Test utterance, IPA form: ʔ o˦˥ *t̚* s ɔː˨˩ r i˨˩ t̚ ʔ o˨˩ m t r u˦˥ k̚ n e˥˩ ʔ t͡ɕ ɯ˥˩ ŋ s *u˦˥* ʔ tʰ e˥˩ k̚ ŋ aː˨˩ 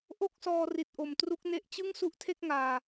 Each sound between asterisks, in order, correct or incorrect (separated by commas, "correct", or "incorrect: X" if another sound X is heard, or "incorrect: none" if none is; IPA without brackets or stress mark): incorrect: k̚, correct